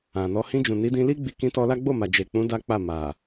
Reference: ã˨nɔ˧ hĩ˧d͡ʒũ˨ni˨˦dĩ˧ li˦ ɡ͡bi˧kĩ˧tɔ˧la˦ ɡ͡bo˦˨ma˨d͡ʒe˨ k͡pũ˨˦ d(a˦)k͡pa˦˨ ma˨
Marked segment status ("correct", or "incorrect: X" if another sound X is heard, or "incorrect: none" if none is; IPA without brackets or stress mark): correct